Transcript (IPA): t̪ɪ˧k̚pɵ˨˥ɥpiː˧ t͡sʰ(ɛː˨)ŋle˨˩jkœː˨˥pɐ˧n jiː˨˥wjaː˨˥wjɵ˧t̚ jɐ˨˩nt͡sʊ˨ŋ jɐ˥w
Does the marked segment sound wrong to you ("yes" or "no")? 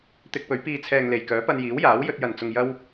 no